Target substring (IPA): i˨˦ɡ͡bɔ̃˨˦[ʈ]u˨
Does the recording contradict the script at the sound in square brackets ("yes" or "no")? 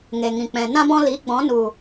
yes